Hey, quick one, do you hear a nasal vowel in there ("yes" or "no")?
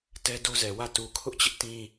yes